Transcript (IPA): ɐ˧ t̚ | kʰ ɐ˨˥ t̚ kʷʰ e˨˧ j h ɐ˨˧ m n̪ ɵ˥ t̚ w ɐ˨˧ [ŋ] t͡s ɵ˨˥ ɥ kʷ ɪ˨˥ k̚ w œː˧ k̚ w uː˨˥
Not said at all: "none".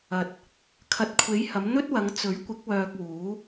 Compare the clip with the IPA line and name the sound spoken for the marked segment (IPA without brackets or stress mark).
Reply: ŋ